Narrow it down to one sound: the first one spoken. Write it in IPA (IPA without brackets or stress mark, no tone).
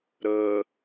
ɾ